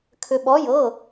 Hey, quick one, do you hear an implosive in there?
yes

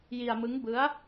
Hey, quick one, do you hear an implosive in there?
no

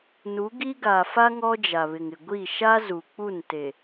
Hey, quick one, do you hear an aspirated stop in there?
no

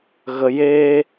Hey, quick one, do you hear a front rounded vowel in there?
no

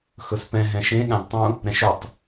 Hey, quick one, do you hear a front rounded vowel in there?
no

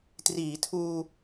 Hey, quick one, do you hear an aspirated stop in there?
yes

